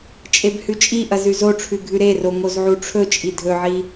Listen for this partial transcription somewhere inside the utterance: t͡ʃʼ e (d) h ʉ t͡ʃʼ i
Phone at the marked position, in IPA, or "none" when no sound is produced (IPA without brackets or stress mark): b